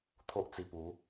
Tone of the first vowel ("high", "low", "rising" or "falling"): high